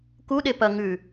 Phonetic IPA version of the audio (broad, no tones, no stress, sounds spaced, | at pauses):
k u ɗ e p ɐ ŋ ʉ